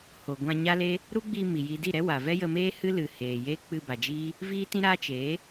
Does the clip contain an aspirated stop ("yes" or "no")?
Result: no